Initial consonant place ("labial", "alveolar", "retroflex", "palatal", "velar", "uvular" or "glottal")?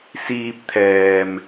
alveolar